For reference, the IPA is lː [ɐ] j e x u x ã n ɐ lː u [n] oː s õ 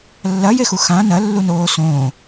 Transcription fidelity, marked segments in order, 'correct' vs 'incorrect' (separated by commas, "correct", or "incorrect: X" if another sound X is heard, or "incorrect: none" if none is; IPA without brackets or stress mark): correct, correct